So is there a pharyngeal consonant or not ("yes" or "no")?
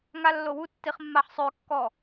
yes